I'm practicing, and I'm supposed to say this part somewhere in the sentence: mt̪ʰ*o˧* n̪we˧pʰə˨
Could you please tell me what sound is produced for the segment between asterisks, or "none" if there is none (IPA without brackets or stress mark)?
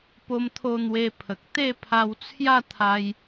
o˧